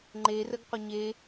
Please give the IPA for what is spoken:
ŋ͡ǃ e r ə ɡ qʷ ə ɲ e

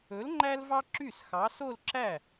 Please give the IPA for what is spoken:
ɵ˨˥ l ŋ͡ǃ æ˥ l v ɑ˥ ǁ y˥˩ s x ɑ˨˥ s o˥˧ l ǁ æ˥˩

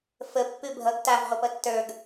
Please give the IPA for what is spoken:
f ə pː ʉ bʱ ʌ ɡ t a v ʁʷ ʌ p ʌ tː ə˞ ɡ

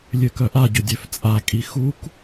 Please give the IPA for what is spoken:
lʲ ø k œ ʔ a ɟ ʏ dʲ ø f t͡sʼ a kʼ i x u k

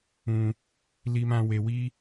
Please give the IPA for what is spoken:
ũ˧ | l i˧ m ã˧ w e˧ w i˦

